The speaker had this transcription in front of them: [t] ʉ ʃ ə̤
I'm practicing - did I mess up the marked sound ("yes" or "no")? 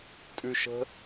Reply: yes